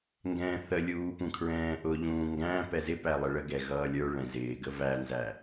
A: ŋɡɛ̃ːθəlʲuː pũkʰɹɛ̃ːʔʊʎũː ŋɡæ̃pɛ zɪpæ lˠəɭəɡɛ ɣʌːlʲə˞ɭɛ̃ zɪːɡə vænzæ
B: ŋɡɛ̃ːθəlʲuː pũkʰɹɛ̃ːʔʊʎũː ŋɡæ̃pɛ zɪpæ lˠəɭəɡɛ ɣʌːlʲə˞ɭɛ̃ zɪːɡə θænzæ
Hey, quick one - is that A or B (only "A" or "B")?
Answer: A